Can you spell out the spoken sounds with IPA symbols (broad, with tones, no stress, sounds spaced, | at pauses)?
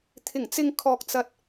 t̪ʰ ɪ˨˩ ŋ t͡s ɪ˨ ŋ kʰ ɔː˨ k̚ t͡s ɐ˧ t̚